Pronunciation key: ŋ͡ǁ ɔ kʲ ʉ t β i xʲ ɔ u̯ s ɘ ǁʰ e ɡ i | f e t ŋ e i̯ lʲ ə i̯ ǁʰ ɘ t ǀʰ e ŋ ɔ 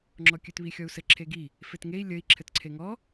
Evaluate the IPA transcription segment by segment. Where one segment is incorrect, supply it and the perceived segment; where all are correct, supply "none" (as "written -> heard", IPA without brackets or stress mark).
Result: none